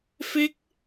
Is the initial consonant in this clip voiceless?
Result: yes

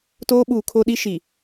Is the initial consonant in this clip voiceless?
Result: yes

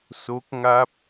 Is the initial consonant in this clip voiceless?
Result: yes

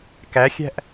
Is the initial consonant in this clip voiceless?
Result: yes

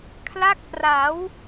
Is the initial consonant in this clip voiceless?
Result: yes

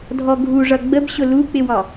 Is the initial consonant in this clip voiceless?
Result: no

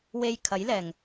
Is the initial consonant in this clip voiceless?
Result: no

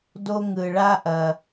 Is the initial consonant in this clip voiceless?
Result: no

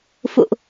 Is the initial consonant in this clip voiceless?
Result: yes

